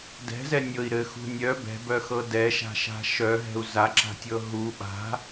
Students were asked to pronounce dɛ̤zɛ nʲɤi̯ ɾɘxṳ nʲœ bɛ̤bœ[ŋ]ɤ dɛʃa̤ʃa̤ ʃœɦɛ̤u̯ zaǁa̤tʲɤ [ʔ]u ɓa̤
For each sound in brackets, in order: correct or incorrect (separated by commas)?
incorrect, incorrect